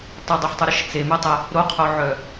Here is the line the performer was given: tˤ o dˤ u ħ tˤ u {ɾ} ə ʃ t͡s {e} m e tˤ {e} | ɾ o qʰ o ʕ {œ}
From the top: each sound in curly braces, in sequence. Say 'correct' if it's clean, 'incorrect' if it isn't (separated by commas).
correct, correct, correct, correct